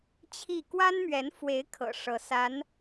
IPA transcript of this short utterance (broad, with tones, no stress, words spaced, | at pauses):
t͡ɕʰi˥˩ kwa˥nmɥɛ˧˥nfwe˧˥ɪ̯ kʰɤ̰˨˩ʂɤ˧˥sa˧˥n